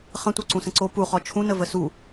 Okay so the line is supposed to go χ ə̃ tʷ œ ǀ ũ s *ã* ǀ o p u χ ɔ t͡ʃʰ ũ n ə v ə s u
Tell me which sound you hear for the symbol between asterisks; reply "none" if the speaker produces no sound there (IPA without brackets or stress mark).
ə̃